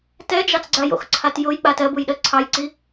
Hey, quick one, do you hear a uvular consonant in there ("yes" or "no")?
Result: no